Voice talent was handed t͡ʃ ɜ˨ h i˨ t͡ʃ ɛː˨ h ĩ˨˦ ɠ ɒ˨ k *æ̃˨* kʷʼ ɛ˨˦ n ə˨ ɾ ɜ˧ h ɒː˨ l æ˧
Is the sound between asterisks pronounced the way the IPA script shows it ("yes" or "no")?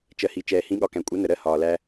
yes